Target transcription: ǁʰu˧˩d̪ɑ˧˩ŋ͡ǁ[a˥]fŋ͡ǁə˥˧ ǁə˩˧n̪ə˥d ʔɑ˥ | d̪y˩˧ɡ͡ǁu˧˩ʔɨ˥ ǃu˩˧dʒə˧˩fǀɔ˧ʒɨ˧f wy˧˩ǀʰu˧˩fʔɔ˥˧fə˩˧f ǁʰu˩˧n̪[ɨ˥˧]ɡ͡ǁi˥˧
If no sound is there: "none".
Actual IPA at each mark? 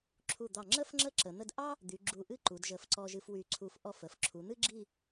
ə˥, ɨ˥

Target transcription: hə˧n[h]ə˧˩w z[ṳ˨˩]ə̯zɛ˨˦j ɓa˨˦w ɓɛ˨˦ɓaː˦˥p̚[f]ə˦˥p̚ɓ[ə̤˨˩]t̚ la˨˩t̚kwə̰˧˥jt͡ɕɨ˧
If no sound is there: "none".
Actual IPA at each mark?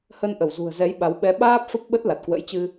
ʔ, ṳ˨˩, f, ə˦˥

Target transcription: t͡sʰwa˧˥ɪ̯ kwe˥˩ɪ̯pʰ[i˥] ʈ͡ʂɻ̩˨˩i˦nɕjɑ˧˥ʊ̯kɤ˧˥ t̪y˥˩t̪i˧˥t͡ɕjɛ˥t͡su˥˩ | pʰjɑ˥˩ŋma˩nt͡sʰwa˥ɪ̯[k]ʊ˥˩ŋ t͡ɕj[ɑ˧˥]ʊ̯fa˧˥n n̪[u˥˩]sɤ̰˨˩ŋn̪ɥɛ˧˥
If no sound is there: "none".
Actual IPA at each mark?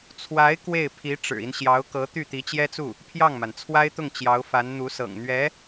i˧˥, t̪, ɑ˧˥, u˧˥

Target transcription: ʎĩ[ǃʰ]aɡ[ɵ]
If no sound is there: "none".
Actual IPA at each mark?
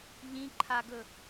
ǃʰ, ɵ

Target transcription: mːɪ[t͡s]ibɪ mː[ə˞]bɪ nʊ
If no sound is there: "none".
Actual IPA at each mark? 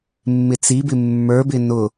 t͡s, ə˞

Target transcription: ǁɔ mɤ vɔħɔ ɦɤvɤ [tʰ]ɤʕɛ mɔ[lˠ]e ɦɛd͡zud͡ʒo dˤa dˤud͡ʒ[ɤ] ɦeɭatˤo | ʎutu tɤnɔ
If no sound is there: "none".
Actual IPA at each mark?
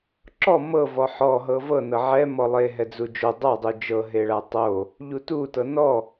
n, lˠ, ɤ

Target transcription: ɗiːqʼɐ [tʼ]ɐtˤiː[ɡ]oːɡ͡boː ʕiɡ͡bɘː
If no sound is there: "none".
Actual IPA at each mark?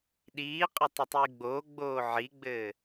tˤ, ɡ͡b

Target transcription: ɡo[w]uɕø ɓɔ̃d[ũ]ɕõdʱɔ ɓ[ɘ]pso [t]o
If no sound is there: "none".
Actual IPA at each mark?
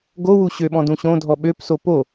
w, ũ, ø, p

